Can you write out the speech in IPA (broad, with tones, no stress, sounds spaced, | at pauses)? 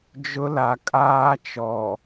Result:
d͡ʒ ʊ˦ l a˨ kʼ aː˦ t͡ʃ ɔ˨